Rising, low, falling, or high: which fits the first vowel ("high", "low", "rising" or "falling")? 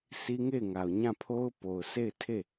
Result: high